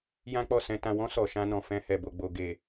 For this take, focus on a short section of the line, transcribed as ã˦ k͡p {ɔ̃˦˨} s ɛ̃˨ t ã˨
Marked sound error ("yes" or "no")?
yes